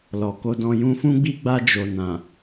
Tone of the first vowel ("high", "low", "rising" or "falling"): low